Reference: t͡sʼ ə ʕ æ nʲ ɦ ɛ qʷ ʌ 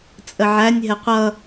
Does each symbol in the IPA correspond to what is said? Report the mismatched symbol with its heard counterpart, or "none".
none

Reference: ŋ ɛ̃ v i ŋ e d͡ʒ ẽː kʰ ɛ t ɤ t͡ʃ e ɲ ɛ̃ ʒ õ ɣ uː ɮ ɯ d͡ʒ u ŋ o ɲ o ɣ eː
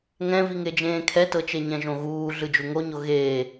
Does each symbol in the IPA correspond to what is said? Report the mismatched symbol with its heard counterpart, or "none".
none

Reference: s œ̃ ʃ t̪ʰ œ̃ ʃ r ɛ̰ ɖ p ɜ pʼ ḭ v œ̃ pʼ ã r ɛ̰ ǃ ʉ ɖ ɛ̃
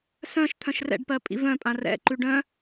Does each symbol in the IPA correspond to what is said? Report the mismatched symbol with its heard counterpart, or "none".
ɛ̃ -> œ̃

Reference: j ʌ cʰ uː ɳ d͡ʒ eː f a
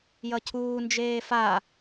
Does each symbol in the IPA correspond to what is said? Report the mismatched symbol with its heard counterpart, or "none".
ɳ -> n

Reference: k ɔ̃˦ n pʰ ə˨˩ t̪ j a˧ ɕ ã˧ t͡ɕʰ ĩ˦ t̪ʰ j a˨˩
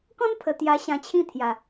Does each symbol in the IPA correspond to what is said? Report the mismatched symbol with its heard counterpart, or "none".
none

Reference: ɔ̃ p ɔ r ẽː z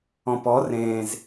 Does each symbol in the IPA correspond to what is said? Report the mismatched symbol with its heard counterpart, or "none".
none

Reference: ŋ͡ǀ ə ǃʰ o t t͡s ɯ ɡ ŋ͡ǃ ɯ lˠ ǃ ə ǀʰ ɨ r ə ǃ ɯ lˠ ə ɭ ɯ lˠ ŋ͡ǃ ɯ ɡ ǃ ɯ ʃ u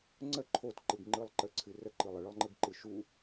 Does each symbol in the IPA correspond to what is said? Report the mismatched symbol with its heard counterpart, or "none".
t͡s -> ǃ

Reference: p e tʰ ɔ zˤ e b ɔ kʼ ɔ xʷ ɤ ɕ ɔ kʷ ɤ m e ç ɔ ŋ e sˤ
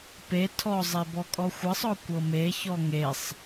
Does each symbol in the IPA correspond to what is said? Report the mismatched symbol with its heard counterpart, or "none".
ɕ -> sˤ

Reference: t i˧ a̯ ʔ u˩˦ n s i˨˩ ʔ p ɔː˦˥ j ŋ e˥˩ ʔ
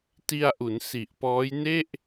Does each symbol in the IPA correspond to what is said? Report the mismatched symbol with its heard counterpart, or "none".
ŋ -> n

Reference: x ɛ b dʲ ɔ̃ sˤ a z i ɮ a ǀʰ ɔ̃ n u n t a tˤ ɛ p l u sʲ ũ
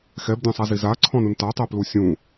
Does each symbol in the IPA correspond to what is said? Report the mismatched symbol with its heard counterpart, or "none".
ɮ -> z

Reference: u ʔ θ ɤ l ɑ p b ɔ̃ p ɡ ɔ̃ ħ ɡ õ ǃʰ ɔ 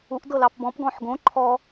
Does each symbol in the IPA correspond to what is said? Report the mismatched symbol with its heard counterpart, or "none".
θ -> d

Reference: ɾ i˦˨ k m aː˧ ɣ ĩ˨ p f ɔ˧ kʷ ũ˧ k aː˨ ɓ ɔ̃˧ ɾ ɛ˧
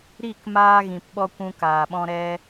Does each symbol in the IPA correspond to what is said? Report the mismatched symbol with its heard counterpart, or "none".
f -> ɓ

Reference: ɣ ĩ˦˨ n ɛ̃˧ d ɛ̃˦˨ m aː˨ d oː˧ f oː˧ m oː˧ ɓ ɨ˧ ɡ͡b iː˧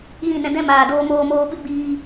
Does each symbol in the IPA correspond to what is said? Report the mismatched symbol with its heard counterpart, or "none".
f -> m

